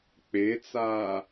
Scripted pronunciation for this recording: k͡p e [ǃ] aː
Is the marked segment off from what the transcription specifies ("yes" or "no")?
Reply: yes